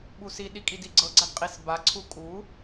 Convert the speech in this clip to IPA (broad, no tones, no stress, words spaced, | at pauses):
ɓusiɗi kʼidiɡ͡ǀɤɡ͡ǀad qʼis baǀʰu kʼu